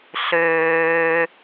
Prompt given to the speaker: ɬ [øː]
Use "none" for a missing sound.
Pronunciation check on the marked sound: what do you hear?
øː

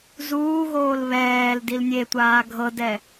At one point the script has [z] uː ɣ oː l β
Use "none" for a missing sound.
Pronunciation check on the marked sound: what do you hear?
z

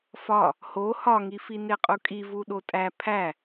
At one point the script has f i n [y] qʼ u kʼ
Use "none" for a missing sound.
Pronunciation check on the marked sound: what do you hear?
e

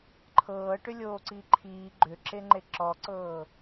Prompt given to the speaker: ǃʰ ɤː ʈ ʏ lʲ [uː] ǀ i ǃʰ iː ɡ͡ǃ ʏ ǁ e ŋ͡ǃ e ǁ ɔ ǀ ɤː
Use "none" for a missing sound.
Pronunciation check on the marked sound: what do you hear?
oː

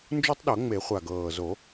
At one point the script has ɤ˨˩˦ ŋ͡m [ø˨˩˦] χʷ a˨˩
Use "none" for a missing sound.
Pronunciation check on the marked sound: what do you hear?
e˨˩˦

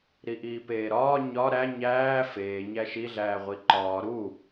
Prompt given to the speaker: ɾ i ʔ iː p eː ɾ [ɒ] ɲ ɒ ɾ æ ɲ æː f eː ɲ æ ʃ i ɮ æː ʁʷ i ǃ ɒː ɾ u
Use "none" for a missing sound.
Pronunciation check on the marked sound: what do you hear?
ɒː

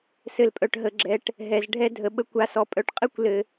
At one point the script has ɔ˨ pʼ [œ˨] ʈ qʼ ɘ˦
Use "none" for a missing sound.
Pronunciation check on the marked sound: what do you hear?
œ˨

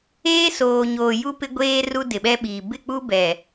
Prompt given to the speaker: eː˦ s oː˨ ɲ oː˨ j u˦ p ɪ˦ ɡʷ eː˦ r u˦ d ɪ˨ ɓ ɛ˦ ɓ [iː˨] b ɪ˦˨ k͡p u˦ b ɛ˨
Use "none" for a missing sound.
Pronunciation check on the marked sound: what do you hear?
iː˨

